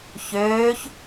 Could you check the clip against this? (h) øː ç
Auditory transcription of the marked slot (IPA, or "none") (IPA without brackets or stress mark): ç